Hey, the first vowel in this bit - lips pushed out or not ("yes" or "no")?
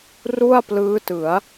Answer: yes